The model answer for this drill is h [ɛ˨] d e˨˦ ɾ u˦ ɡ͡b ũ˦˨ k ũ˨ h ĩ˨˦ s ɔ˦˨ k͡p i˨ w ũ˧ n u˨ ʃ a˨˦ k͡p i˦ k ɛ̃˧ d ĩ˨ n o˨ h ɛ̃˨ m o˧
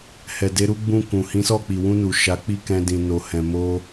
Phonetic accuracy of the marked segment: correct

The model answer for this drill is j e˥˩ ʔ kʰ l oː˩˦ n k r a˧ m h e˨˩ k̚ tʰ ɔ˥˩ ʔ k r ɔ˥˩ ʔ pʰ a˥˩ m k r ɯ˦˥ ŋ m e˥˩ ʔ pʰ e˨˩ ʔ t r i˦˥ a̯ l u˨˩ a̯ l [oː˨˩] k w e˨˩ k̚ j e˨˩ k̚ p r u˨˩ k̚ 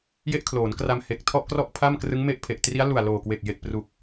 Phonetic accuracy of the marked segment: correct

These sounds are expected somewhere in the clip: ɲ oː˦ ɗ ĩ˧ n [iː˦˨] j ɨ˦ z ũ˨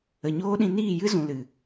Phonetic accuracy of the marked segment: correct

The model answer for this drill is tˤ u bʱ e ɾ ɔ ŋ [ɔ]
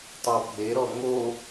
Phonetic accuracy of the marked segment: incorrect: o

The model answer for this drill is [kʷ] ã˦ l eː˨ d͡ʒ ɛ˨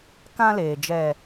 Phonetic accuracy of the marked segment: incorrect: k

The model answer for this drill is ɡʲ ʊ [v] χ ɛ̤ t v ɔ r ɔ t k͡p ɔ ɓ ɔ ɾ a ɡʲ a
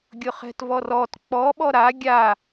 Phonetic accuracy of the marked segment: incorrect: none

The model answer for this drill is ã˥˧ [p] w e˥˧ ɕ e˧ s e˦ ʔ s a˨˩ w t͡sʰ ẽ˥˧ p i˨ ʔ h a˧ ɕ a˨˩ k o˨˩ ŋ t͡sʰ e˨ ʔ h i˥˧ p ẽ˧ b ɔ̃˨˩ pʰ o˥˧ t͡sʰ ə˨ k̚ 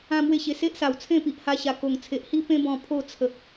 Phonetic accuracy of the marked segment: incorrect: m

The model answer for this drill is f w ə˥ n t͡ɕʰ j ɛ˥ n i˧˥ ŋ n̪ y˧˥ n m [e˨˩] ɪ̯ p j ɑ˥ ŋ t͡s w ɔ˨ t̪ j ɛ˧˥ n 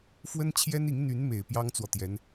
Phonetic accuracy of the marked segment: correct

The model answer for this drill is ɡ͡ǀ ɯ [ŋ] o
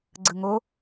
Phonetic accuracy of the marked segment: correct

